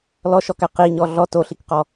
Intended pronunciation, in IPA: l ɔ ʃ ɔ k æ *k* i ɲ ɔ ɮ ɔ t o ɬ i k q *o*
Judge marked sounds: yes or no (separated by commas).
no, no